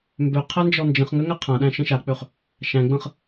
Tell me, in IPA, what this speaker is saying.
m b ø qʰ æ n d͡ʒ ɔ n d͡ʒ ə̃ χ ŋ ʏ ŋ æ qʰ ã ɗ æ̃ ʃ ə̃ ʃ a k͡p ø χ | ʃ æ̃ ɡ͡b ə̃ χ

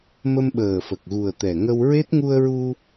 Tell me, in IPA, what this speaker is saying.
m ə˧ m ɓ əː˨˩ f ə˨˩ k̚ ɣ u˨˩ ə̯ t̪ ɛ˨˩ ŋ ə˧ w ɹ e˦˥ t̚ ŋ u˧ ə̯ ɹ u˧

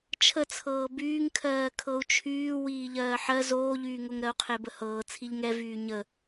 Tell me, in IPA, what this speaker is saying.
t͡ʃʰ ə t͡sʰ ɤː b yː ŋ kʰ ɜː kʰ ɤ u̯ t͡ʃʰ yː w iː ʎ ɜː ħ ɜ z oː ʎ yː ŋ o ŋ ɾ ɜ u̯ qʰ e b ə h ɤː t͡sʰ i ʎ ŋ ɛ v yː ɲ ə

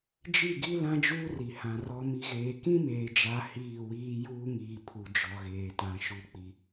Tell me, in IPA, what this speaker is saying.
d͡ʒ i˦˨ ɡ i˦ l ã˦ d͡ʒ uː˦ r i˨ h ã˨ r ɔ˨ m i˨ ɣ eː˨ k ĩ˦ m eː˨ d͡ʒ a˨ h iː˦˨ w iː˦ j uː˦ ŋ iː˨ pʰ u˨ d͡ʒ ɔ˨ ɣ eː˨ t ã˨ ʃ u˨ k͡p i˨

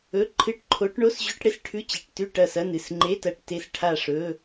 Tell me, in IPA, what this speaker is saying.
ɵ˧˥˧ ǃʰ ɨ˦˨ ʈ ǃʰ o˧˥ ʈ ɳ o˧˥˧ s ʑ ʉ˧˥˧ ʈ ɽ e˦˨ s ʈʰ ʉ˧˥˧ t͡ɕ i˩˧˩ ʈ t ʉ˦˨ ʈ ɐ˦˨ s ɐ˧˥˧ n ɨ˩˧˩ s ŋ͡ǃ e˧˥˧ t ɐ˦˨ ʈ t e˦˨ s ʈʰ a˦˨ ʂ ɵ˧˥˧

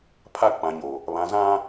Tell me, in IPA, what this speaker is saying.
pʰ a˦˨ k͡p ã˨ ɲ o˨ | β ã˨ z ã˦

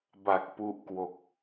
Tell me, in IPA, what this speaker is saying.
b a˨˩ k̚ p u˦˥ ʔ k w o˨˩ k̚

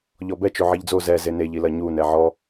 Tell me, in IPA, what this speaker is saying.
ʎ ɔ b ɛ t͡ʃ o ʕ i ʎ d͡z o z ɛ z e n e ʎ i l ɐ ɲ u n ɛ ʕ ɔ

